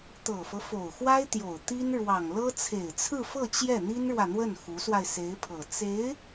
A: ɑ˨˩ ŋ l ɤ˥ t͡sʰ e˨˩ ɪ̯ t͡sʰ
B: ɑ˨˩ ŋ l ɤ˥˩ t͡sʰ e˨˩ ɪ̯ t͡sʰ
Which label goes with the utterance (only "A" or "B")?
A